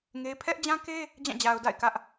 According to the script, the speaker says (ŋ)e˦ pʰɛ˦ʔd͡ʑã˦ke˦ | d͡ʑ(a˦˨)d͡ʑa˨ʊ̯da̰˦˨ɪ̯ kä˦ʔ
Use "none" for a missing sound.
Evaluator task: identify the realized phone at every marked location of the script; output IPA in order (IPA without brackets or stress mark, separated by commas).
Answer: ŋ, ã˦˨